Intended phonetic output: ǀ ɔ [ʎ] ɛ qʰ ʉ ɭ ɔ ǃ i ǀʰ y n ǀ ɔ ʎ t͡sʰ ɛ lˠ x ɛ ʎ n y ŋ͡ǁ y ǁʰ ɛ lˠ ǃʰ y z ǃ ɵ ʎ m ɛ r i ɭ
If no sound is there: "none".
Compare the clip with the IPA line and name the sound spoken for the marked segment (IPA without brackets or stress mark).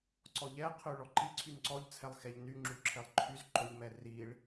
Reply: ʎ